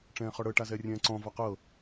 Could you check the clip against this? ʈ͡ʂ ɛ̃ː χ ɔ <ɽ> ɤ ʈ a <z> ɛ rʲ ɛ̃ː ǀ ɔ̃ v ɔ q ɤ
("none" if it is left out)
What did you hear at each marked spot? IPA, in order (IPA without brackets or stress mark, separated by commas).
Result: ɽ, z